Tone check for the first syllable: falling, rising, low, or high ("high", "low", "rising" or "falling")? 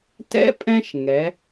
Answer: rising